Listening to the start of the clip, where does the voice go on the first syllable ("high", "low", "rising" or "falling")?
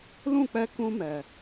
falling